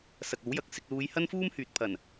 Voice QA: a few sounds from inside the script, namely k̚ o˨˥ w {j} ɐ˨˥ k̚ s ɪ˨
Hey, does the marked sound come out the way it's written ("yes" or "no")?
yes